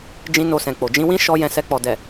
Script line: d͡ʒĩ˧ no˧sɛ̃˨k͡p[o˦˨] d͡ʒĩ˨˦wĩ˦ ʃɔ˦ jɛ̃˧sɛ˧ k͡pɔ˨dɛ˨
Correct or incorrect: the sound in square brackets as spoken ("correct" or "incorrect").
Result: incorrect